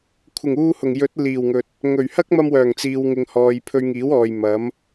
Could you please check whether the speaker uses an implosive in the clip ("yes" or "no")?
no